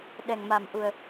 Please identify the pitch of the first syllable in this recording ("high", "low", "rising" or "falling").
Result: low